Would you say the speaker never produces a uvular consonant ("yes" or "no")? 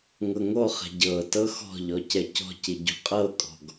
no